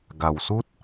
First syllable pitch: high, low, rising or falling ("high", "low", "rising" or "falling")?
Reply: low